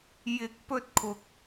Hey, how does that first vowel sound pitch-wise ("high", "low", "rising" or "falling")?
high